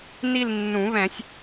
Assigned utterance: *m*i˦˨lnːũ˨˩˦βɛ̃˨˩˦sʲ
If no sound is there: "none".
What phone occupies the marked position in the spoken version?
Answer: n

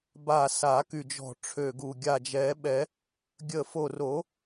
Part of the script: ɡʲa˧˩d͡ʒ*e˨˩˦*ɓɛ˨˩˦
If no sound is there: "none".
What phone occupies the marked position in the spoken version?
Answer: ɛ˨˩˦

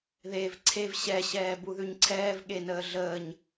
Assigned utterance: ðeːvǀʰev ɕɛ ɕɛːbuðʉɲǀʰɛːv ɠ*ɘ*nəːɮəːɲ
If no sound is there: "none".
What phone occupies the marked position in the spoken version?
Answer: e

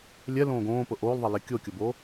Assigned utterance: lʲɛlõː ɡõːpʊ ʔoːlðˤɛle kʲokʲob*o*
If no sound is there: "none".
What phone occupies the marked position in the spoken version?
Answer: oː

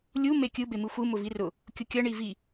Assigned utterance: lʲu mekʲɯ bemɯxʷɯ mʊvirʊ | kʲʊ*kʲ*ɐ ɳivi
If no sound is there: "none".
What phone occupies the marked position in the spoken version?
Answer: kʲ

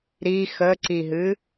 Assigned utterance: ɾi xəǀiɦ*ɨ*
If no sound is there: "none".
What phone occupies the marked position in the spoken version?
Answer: ɨ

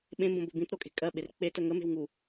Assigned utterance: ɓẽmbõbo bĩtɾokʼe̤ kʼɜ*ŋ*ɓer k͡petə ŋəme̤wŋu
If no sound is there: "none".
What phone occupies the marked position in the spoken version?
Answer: none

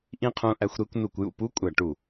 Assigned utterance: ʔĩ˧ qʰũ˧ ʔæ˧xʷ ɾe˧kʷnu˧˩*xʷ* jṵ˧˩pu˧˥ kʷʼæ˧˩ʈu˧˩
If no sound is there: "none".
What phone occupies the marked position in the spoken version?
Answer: kʷ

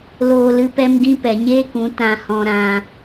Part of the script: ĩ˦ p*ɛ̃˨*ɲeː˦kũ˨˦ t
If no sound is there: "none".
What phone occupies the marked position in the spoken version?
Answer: ɛ˨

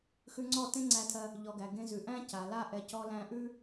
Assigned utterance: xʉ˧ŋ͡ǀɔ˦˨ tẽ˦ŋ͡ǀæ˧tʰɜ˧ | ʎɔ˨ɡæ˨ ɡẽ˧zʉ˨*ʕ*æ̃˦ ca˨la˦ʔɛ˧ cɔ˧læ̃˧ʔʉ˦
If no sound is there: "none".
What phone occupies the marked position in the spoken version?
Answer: ʔ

